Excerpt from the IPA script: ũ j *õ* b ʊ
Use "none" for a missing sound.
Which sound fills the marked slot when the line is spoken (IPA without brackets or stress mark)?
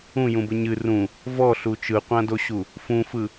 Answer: ũ